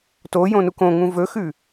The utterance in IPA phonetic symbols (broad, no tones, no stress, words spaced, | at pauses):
tojõnuk õŋũ vɵxʉ